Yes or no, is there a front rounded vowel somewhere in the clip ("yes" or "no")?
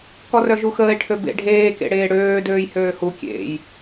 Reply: yes